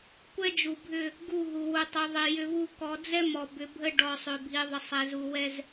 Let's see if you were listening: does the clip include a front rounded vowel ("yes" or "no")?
yes